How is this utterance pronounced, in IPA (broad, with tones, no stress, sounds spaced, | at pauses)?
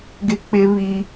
ɡ ɪ˦ k͡p ɪ˦ β i˦